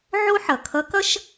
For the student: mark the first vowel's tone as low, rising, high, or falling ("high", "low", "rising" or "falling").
high